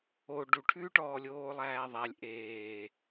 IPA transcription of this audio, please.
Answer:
o ɖ u ʈʰ ʉː ʈ ɔː lʲ oː lˠ æː ðˤ æ lʲ ʔ eː

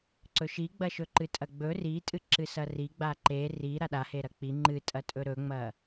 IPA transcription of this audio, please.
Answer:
ǀ ɵ ʃ i ɡ͡b ɐ ʃ ɵ ǃ ɨ tʼ ɐ ɡ͡b ɵ r i tʼ ɨ ǁ ɨ s ɐ r i ɡ͡b a ǃ e r i ɾ a ɗ a h e ɾ ɐ k͡p i ŋ͡ǃ ɨ tʼ ɐ tʼ ɵ ɾ ɵ ŋ͡m ɐ

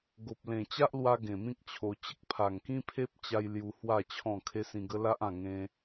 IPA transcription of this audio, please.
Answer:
ɡ o˨ p̚ l ẽ˨˩ t͡ɕ a˦ ʔ l w a˧ ɡ ẽ˨˩ m ĩ˦ k̚ t͡ɕʰ o˧ t͡ɕ ə˦ k̚ pʰ a˨˩ ŋ k ĩ˦ pʰ e˦ p̚ t͡ɕ a˧ j l j u˧ h w a˥˧ t͡ɕʰ ɔ̃˥˧ kʰ e˦ s ĩ˧ ɡ ə˦ l a˦ ʔ ã˥˧ ŋ ẽ˧

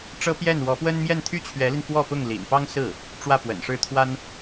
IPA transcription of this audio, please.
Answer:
ʈ͡ʂ ɤ˥ p j ɛ˥˩ n w ɔ˧˥ p w ə˥ n m j ɛ˥˩ n t̪ʰ y˥ t͡ɕʰ ɥ ɛ˧˥ l i˧ n f w ɔ˥˧ p ʊ˥˩ ŋ l ḭ˨˩ n p ɑ˥ ŋ s ɹ̩˥˩ | ʈ͡ʂ w ä˥˩ p w ə̰˨˩ n ʂ ɻ̩˥˩ t̪ʰ w a˥ n

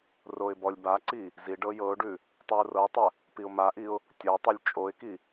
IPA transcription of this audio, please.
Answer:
r o ɪ̯ b ɔ lʲ b a ǀ i | z i ɖ ɤ j ɤ ʊ̯ ɖ ʉ | tˤ ʉ ʊ̯ r ɤ tˤ ə | p i ʊ̯ m a ʔ i ʊ̯ | tʲ ɤ tˤ ʉ lʲ t͡ʃʼ o ɪ̯ k i

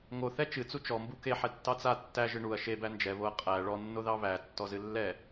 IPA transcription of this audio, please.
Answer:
ŋ o θ ɛ t͡ʃ ɨ t͡s u t͡ʃ ɔ m b u k e ħ ɛ tː ɑ t͡s a tː æ ʒ ɨ ɳ u ɐ̯ ʃ e b æ n d͡ʒ ɛ β o ɐ̯ qʼ æ ɭ ɔ nː o ð ɑ β æ tː ɔ z ɨ lː ɛ

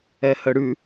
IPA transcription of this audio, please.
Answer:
ɛ h ə ɽ ʉ

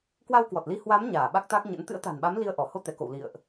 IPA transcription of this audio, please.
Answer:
k w a˧ w k w ɔ˨˩ t̚ l i˧ h w a˨˦ m ɲ aː˧˩ ɓ a˦˥ k̚ t̪ a˦˥ k̚ ɲ ə̰˧˥ n t̪ ɨ̰˧˥ ə̯ t̪ a̤˨˩ n ɓ a˨˦ m l i˧ ə̯ ʔ ɔ˧˩ h o˧ t̪ ɛ˧˩ k o̰˧˨ w l ḭ˧˨ ə̯ ʔ

